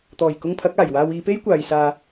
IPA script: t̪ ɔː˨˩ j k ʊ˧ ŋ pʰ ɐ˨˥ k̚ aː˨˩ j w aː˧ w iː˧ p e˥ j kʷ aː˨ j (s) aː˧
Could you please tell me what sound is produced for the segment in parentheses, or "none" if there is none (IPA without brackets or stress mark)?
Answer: s